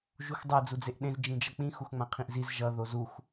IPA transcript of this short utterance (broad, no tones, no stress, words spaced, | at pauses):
ʒuxdˤɛ d͡zud͡zeʔɗẽz d͡ʒĩd͡ʒʌk͡pĩ xuxŋ͡mãqʰĩʔziz ʒʌ ðozux